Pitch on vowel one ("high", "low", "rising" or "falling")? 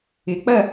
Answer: rising